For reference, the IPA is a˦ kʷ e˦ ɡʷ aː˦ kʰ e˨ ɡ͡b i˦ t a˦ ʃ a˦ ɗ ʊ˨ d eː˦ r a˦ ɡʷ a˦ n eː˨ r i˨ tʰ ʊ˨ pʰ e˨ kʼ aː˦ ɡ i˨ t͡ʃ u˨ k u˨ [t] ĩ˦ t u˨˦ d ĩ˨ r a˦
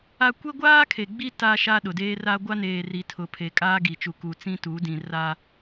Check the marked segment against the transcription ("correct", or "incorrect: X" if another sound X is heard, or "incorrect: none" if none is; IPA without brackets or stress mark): incorrect: t͡s